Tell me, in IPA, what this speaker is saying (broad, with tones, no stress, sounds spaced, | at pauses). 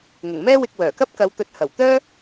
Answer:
ŋ ʊ˨˩ ŋ m ɛː˥ w ɪ˧ k̚ w œː˨˩ k ɐ˥ p̚ k ɐ˨˧ w t̪ ɵ˨˥ t̚ h ɐ˨˩ w t̪ œː˥